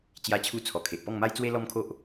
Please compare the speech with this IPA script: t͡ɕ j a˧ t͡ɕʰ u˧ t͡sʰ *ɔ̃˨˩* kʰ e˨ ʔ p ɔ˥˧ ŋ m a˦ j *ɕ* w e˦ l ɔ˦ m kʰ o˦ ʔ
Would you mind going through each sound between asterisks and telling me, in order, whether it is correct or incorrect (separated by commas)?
incorrect, incorrect